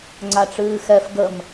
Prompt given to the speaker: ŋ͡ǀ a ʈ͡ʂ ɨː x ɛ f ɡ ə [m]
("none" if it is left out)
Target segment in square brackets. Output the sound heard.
m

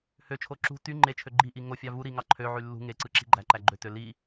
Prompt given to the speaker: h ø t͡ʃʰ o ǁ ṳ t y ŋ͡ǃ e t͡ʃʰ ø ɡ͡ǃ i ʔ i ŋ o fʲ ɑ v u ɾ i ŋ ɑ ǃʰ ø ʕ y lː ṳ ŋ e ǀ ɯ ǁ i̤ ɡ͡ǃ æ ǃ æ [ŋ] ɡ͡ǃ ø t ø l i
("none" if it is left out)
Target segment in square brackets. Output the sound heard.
none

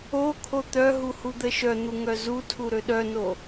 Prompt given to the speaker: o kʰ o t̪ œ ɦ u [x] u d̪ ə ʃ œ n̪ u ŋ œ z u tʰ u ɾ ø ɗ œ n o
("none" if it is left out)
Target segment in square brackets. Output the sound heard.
h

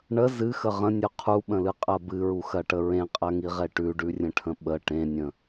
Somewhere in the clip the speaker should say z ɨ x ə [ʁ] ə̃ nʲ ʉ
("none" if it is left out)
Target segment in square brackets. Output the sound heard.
ʁ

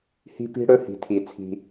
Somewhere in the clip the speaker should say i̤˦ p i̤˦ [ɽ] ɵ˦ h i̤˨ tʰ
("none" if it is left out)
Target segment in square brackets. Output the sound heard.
ɽ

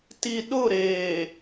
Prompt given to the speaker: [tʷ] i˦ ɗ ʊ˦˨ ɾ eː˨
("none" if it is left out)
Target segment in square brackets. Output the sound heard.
t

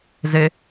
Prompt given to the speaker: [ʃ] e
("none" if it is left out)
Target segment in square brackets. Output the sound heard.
z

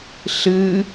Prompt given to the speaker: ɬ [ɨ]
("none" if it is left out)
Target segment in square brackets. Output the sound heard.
ɨ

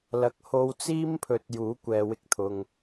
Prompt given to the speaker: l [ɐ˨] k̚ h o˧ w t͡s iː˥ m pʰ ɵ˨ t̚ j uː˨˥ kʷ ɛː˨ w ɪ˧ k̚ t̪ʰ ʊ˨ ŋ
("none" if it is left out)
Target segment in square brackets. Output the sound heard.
ɐ˨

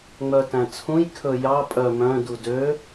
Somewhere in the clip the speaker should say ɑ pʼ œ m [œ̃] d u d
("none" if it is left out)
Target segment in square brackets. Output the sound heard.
œ̃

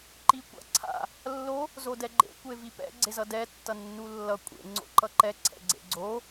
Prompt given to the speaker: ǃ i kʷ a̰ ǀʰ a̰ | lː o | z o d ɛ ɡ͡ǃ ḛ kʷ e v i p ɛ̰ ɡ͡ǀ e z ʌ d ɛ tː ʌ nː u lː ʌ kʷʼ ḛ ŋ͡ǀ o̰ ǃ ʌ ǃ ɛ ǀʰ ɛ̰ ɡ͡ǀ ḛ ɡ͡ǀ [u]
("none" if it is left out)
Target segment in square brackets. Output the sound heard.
o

